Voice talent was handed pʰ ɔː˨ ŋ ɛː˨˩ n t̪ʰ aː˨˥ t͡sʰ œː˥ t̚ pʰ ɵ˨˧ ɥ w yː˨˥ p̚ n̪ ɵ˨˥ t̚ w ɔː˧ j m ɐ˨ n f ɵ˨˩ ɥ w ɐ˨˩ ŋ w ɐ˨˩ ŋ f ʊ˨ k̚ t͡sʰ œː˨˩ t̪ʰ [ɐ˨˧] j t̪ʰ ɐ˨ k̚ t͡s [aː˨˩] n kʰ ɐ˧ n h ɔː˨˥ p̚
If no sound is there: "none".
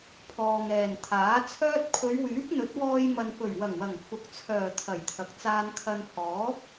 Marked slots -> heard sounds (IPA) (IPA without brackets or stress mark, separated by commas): ɐ˨˩, aː˧